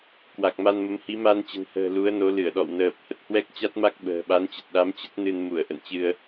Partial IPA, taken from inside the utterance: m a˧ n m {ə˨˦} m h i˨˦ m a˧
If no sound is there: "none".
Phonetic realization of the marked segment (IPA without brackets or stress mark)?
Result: ə˨˦